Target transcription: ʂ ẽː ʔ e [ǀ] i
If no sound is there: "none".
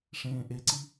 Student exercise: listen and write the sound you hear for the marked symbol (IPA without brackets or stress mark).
ǀ